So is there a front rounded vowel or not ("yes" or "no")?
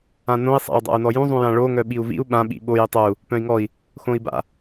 yes